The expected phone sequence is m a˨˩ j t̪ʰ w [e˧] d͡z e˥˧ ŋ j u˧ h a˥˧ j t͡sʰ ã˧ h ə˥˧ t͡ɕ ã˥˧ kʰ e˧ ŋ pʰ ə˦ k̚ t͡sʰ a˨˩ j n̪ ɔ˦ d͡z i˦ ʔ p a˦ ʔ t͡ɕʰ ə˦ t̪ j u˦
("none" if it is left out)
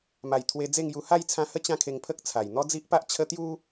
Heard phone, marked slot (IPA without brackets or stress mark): e˧